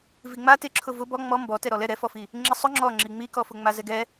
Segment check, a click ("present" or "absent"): present